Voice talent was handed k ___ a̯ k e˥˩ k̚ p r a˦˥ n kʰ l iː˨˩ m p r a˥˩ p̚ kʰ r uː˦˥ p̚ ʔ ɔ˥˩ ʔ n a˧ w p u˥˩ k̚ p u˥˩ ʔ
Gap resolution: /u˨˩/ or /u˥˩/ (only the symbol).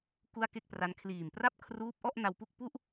u˥˩